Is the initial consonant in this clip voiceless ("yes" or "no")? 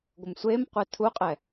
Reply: no